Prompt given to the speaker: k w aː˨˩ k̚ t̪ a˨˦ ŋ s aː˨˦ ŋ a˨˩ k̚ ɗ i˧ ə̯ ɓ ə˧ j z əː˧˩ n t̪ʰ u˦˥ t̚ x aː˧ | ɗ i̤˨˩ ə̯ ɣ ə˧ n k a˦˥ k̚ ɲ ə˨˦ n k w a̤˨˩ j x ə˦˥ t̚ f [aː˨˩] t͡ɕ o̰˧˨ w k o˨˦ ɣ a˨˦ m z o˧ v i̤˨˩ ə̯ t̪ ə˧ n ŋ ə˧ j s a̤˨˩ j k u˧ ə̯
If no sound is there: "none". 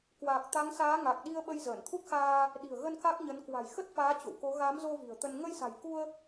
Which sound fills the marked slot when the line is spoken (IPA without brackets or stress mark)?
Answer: aː˨˦